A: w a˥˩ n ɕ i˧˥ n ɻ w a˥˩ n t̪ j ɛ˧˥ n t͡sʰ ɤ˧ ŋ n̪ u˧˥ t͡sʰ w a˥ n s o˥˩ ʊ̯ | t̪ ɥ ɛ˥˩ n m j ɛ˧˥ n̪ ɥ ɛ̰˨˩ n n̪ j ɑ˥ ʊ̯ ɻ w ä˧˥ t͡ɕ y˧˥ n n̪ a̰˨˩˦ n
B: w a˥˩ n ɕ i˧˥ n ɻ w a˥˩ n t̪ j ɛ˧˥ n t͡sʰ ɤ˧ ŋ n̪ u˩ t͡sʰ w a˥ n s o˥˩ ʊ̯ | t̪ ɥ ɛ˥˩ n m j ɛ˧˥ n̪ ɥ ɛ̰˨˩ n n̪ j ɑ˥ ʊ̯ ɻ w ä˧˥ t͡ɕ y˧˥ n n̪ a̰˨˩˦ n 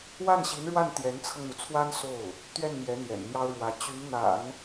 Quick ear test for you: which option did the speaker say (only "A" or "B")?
B